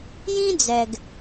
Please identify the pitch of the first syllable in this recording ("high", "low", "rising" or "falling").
high